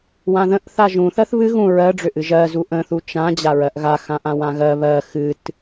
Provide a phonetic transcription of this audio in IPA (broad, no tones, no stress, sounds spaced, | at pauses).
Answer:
w ã ð ə̃ ʔ θ a ʒ ũ θ ɜ θ β ɨ ɣ ũ ɹ ɜ ɖ͡ʐ ø ʔ ɨ ʒ ɜ z u ʔ ə̃ θ u t͡ʃ ã d͡ʑ a ɹ ɜ ʔ ɣ a x ã ʔ ã w ã ɣ ɜ β ɜ x ɨ t